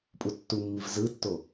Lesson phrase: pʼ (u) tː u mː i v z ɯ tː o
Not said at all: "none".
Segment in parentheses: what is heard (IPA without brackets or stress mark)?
u